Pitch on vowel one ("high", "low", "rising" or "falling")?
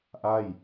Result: falling